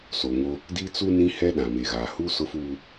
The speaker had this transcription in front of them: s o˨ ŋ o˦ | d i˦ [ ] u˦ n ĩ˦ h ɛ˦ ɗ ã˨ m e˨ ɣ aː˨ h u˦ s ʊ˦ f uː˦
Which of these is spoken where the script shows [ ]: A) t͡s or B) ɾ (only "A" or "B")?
A